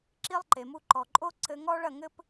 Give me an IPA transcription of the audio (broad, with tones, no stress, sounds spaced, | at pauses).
ǁ i˥ lˠ ǃ e˩ m u˧ ǃ ɔ˩ ǃʼ o˥ ǀ ɘ˧ ŋ ɔ˥ ɭ ɐ˥˩ ŋ ɘ˥ p